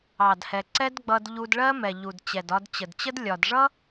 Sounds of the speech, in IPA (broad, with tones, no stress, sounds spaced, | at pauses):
ɑ˨ d h ɛ˨ ǀ ɛ˦ d ɡ͡b ʌ˧ d ʎ u˧ d ɭ ɜ˦ m ɛ˨ ʎ u˨ d t͡ɕ ɛ˨ d ɒ˧ d t͡ɕ ə˨ d t͡ɕ ə˦ d lʲ ɒ˨ d ʐ ʌ˦